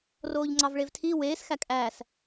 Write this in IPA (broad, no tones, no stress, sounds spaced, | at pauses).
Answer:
r oː ʎ ŋ͡ǀ ɑ v ɭ e v tʰ i w eː s x æ kʼ æː s